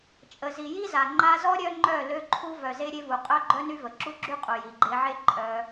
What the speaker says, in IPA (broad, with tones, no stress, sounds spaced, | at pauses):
t͡ʃʼ ə˨ z i˨ j i˦ z a˨ ŋ͡ǃ a˧ z ɔ˦ ɾʲ œ˦ ŋ͡ǃ œ˦˨ l ø˧ ǃʰ u˧ v œ˨ z e˧ ɾʲ e˧ v u˨ qʼ œ˦ ɡ͡ǃ œ˦ n y˦ v ə˨ ǁ u˦ ɡ͡ǁ y˦ qʼ u˨ j i˨ ɡ͡ǃ e˧ ʕ e˦ ǃʼ œ˧